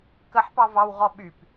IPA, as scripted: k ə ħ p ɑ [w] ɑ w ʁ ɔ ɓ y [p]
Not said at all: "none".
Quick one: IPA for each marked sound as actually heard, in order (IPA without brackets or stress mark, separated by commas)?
v, p